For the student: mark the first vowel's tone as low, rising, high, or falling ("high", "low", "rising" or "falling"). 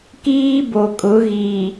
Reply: high